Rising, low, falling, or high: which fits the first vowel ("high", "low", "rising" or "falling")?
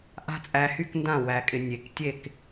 high